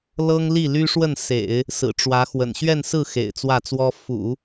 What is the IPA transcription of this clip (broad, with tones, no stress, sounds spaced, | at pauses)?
l ɤ˥ ŋ l i˥˩ l y˥ ʂ w ə˥˩ n s ḛ˨˩˦ ɪ̯ | s ɹ̩˨˩ ʈ͡ʂ w ä˧˥ x w ə̰˨˩ n ɕ ɥ ɛ˥˧ n s ɹ̩˥˩ x ḛ˨˩ ɪ̯ t͡s w ä˥˩ t͡s w ɔ˥ f ṵ˨˩˦